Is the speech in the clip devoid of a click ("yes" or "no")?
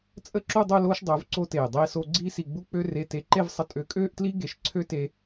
no